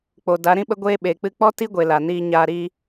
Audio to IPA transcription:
k͡p o˨ d a˨˦ ɾ ĩ˦ ɓ ə˦ ɡʷ eː˦ ɓ e˨ k͡p ɨ˧ k͡p ɔ˦ t i˦ ɡʷ e˨ l a˨ n iː˧ ɲ aː˧ ɾ i˦

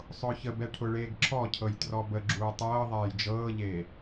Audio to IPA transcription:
sˤ ʊː ç ə b ɛ ʈʰ ʊ ɭ eː ɡ ǁʰ ɔ cʰ ɤ j t r ɔ b ə ɡ͡ǁ uː tˤ ɤː ðˤ ɛː j d͡ʒ ɤː ʎ eː

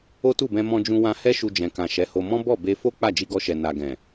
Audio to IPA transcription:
o˦ t u˦˨ b ɛ̃˧ m ɔ̃˧ d͡ʒ ũ˧ w ã˧ h ɛ˦ ʃ u˧ d͡ʒ ɛ̃˨ k ã˨ ʃ ɛ˨˦ h o˧ m ɔ̃˦ b ɔ˦˨ b e˧ f o˦ k͡p a˦˨ d͡ʒ i˧ ɡ ɔ˧ ʃ ɛ˨ n a˨ ɡ ɛ̃˨

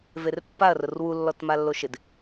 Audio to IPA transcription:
v e r pː a ɐ̯ r ʊ r w u lː ɔ t m a lː o ʃ ɪ d

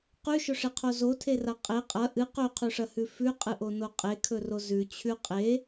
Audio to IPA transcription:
q ʉ ʃ ɵ ʂ e qʰ o z o tʰ e r a qʼ e qʼ ɐ ʔ ɨ q ɵ qʰ ʉ ʂ ɐ h ʉ f ʉ qʼ ɨ ʔ o n o qʼ e kʰ ɵ r o z ʉ t͡ɕʰ ʉ qʼ e

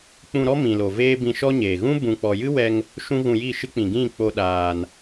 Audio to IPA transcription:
k͡p ũ˧ ɾ ɔ˦ m ĩ˧ l o˧ v eː˦ b ĩ˧ ʃ ɔ˦ ɲ eː˨ ɣ ũ˦ b ũ˧ k͡p ɔ˧ j ɨ˦ w ɛ˧ ŋ | ʃ ũ˦ ɣ ũ˧ j i˦˨ ʃ ɨ˦ k͡p ĩ˨ ɡ ĩ˦˨ k͡p o˦ ɗ aː˧ n

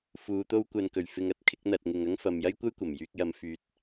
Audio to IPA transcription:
f uː˨˧ t̪ o˥ w kʷ ɐ˧ n k ɵ˨˩ ɥ f ɪ˧ ŋ ɐ˥ t̚ kʰ ɪ˨˥ k̚ n̪ ɐ˨ t̚ ŋ ɪ˨ ŋ ɐ˥ ŋ f ɐ˨ m j ɐ˥ j kʷ ɐ˥ j kʷ ɐ˨˩ m j yː˧ k̚ j ɐ˨˧ m f yː˨˥ t̚

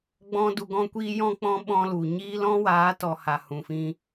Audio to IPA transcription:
ɡ͡b ɔ̃˦ d u˧ ɡ ɔ̃˦ kʷ iː˦ j ɔ̃˦ k͡p ɔ̃˦ ɓ ɔ̃˧ l u˨ ɲ iː˦ l ɔ̃˦ w aː˨˦ t ɔ˨ h a˨ h ũ˨ f ĩ˧

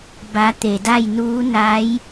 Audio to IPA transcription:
b a˩˧ t̪ e˩ d a˥˨ j n uː˧˥ n a˧˥ j

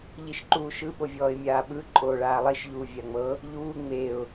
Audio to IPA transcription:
ʎ i ʃ ǃ uː ʃ ɯ ɓ o vʲ ɔː ɪ̯ mʲ aː ɓ ɯ ǃʼ oː ɭ aː lˠ i ʃ ʎ uː vʲ a ŋ͡m ɤ | ʎ uː ŋ͡m e ʊ̯

